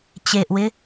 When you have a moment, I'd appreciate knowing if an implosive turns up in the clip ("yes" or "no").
no